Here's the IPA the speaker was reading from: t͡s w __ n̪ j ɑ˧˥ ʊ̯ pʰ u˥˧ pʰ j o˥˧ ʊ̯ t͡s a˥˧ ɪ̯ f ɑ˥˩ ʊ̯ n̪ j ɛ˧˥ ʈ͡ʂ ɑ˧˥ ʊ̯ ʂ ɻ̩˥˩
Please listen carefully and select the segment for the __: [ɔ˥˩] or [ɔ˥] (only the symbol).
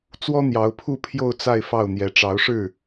ɔ˥